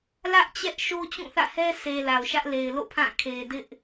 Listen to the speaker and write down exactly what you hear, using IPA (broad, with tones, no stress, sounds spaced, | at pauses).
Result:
l ä˦ ʔ t͡ɕ ɛ˦ ʔ ʃ o˦ t͡ɕ ũ˦˨ θ ä̰˦˨ h ɛ˦ s e˨ l a˨ ʊ̯ ʃ ä˦ ʔ l e˨ ɪ̯ l o̰˦˨ pʰ ã˦˨ kʰ e˨ d ɪ˦ ʔ